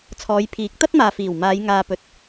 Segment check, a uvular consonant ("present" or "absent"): absent